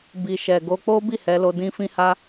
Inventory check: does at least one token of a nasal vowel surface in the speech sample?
yes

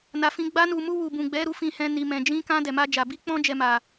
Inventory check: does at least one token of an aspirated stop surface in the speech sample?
no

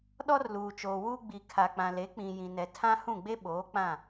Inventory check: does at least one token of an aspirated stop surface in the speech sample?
yes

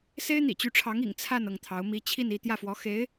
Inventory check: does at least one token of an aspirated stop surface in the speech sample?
yes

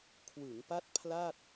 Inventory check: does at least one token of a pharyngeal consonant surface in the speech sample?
no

